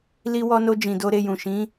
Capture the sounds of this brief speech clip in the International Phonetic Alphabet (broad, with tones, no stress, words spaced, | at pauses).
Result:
li˧wɔ˧no˧ d͡ʒĩ˨do˧ɾe˧jũ˨ ʃĩ˨˦